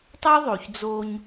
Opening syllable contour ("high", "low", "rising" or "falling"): high